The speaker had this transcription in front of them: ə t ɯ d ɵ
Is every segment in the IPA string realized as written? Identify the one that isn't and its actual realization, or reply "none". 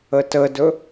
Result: ɯ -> ə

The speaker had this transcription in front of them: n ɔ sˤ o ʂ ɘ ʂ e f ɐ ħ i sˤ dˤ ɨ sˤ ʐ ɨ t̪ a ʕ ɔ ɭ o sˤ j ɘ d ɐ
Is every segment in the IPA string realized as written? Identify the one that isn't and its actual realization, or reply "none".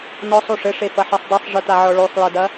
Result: none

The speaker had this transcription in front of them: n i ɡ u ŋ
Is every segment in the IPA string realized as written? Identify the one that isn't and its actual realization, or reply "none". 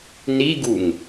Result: none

